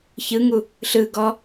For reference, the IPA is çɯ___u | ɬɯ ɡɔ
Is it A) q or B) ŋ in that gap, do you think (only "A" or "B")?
B